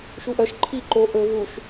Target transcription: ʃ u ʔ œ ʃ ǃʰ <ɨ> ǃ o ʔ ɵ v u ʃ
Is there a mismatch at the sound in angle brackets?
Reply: yes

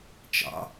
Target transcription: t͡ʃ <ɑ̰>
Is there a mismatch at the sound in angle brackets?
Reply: no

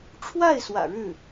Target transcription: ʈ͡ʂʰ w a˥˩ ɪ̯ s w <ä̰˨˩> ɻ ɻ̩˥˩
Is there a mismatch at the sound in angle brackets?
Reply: no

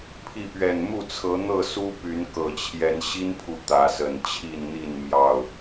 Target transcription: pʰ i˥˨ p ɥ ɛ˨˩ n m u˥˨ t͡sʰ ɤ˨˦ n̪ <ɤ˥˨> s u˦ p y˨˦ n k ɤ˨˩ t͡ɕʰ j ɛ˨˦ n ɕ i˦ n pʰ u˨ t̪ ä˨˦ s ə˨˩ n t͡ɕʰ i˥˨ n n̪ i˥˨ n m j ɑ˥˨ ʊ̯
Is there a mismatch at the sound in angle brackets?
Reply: no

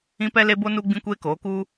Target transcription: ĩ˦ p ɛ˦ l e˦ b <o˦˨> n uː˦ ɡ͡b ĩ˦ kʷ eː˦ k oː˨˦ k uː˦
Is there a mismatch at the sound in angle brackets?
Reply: yes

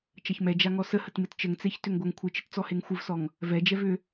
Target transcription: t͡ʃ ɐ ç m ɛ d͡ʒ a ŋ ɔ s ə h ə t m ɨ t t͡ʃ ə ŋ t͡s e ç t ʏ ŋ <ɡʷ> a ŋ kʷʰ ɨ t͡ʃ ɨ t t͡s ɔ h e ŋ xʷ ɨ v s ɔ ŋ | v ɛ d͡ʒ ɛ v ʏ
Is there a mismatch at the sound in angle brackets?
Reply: no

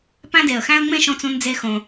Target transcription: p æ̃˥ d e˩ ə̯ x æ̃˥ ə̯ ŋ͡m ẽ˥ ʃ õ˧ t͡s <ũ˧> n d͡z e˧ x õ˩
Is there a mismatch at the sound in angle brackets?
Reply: no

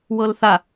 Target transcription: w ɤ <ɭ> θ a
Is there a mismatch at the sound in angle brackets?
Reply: yes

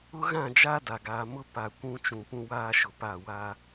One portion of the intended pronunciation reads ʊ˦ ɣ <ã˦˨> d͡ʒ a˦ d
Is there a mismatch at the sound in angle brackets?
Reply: no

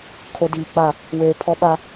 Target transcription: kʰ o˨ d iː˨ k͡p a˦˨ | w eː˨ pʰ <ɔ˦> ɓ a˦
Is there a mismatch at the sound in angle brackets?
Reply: no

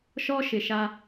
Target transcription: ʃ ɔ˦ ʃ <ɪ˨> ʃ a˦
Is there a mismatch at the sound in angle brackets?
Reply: no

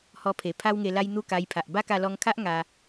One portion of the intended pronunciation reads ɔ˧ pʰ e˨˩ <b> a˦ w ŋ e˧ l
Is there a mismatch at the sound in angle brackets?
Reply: yes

